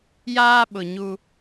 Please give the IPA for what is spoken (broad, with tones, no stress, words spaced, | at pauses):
jaː˦ɓʊ˨ ɲu˦